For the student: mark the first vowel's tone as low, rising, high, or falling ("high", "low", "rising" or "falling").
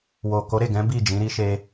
low